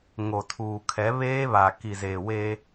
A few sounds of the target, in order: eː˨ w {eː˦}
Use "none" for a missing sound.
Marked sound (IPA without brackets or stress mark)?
eː˦